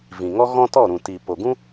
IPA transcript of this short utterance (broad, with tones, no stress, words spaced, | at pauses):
vĩ˨ŋɔ˦ ɣɔ̃˦tɔ˦˨ɾũ˨ti˨ po˨ɡũ˦